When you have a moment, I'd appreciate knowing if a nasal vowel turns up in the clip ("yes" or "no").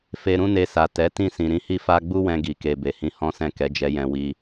yes